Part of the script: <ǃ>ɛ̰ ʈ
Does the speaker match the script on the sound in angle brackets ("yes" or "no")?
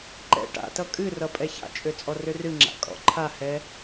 yes